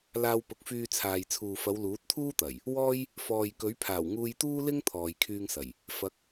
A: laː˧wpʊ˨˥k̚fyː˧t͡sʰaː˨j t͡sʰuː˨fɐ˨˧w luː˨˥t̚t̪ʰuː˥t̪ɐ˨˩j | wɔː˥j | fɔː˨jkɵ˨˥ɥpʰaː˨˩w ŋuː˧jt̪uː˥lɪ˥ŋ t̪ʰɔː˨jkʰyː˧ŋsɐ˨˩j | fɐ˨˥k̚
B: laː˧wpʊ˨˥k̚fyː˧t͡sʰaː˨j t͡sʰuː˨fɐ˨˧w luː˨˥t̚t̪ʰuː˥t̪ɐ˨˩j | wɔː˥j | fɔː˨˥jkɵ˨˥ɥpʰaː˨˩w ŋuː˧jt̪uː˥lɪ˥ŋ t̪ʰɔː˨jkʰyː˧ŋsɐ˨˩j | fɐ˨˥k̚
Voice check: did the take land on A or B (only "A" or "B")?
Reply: A